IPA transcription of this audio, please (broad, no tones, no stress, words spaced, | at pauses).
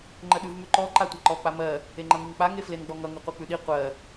ŋ͡ǃəɗʉvmʉǃɔ ǃatʷaǃɔ k͡pamɜ | eŋ͡ǃʌŋiŋk͡pa ŋeflenɡ͡bɔŋʌ ŋʉqʷœk͡pʉɗi qʷɜ